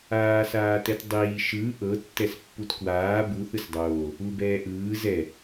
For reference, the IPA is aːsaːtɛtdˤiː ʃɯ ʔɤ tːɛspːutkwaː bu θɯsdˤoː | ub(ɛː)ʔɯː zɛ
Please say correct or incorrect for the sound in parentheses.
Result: correct